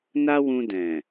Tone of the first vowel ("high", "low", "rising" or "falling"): high